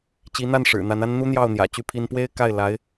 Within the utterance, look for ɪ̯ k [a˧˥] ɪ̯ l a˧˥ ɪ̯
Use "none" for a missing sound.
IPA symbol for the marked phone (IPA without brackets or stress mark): a˥˩